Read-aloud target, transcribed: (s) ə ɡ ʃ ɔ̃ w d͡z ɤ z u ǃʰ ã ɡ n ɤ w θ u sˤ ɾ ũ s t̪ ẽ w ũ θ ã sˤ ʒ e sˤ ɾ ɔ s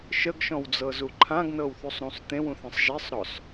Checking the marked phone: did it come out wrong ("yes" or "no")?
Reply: yes